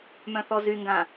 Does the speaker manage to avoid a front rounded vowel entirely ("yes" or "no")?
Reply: no